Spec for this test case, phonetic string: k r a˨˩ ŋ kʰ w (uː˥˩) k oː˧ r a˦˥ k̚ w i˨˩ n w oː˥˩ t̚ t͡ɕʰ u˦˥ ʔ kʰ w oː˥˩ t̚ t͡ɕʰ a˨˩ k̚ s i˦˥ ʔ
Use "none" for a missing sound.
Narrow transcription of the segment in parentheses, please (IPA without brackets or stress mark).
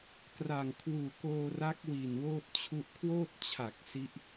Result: uː˨˩